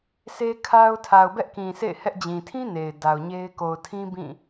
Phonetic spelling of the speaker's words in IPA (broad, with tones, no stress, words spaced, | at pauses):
se˦kʰa˦ʊ̯ tʰa˨ʊ̯bɛ˦ʔkĩ˨ sḛ˦˨ɪ̯hɛ˦ʔd͡ʑĩ˨ tʰĩ˦ ne˨ɪ̯da˨ʊ̯ɲe˦ɪ̯ ko˨ʊ̯tʰĩ˦ bĩ˦˨